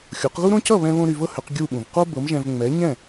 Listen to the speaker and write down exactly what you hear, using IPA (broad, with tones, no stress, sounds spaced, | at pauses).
xʲ o˩˥ q ɣ u˥ ɾ õ˥ c ʌ˥˩ β ɛ̃˧ β õ˧ ɾ y˧ v ɤ˥ h ʏ˩˥ q ɡʲ u˥˩ ɓ ũ˩ v q o˥ b ɤ˩˥ m ʒ ɛ̃˧ v ŋ͡m ɛ˩˥ ɲ ɛ̃˥˩